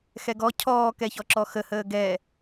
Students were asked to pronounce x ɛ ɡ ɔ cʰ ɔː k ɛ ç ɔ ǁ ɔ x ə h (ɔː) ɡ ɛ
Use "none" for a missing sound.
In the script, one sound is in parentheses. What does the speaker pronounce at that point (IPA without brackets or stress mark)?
əː